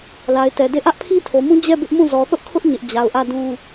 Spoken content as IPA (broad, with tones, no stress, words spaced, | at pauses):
la˨ɪ̯tɛ˨de˦˨ ʔä˦ʔpʰi˦tʰo˨mũ˦ d͡ʑɛ˦˨ bɪ˦ʔmũ˦˨ zɔ˨θʊ˦ʔkʰʊ˦ʔ ɲɪ˦ʔ d͡ʑa˨ʊ̯ʔä˦˨dũ˦